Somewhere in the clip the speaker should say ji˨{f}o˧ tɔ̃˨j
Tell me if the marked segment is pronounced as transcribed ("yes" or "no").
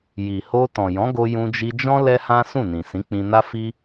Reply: no